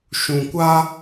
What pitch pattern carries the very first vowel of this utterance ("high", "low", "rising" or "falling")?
low